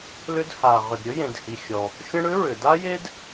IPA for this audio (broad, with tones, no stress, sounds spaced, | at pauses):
l ʏ˥ d h a˩ ʁ ʏ˩ d ɾʲ ɵ˥ j ẽ˩ d h i˩ xʲ ɔ˩ | xʲ ə̃˥ ɽ ʏ˥ ɹ ʏ˩ d a˥ j e˥ d